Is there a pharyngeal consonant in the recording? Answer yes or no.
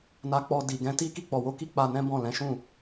no